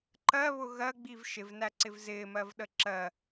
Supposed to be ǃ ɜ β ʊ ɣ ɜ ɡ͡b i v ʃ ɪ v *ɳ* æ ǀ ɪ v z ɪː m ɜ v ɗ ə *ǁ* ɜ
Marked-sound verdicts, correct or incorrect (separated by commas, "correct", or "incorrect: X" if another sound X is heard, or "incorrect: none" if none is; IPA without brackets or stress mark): incorrect: n, correct